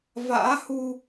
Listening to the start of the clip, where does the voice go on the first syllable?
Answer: rising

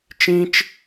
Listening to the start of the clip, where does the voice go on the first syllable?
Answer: high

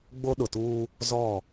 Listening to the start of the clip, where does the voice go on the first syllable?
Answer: high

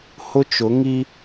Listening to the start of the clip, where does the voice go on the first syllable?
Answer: high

